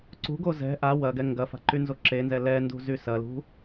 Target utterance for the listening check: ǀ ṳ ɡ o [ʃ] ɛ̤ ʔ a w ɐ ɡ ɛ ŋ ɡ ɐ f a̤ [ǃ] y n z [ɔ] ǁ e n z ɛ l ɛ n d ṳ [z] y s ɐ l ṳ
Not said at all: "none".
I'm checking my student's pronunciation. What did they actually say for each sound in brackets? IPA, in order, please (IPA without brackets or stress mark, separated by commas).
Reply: z, ǃ, o, z